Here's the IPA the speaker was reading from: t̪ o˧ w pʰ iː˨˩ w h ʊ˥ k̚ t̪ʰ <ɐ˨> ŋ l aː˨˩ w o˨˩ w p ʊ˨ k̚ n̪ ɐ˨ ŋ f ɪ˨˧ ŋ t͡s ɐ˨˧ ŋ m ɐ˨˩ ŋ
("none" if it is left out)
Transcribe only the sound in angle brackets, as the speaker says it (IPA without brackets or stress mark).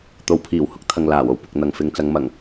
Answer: ɐ˨